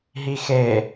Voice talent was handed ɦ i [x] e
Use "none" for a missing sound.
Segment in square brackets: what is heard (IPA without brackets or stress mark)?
x